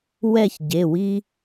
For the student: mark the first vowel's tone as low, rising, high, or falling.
falling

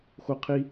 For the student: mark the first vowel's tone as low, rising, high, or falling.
high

